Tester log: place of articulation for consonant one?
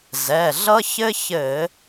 alveolar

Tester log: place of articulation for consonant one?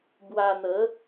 labial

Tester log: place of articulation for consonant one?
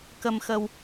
velar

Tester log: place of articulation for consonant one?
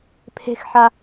labial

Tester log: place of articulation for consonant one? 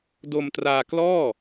alveolar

